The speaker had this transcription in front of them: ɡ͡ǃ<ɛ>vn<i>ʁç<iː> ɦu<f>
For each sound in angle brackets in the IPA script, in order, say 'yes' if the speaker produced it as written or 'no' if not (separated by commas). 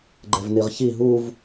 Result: yes, yes, no, no